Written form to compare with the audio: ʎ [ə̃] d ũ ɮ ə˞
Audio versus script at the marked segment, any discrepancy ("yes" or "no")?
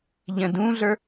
no